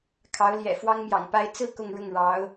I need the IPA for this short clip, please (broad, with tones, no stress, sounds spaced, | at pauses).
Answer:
kʰ ɑ˧˥ ʊ̯ l j ɛ̰˨˩ f w ɑ˥ ŋ m j ɑ̰˨˩ ŋ p a˥ ɪ̯ t͡s ɹ̩˥˧ k ʊ˥˧ ŋ ɻ ʊ˥˩ ŋ ɻ ɑ˧˥ ʊ̯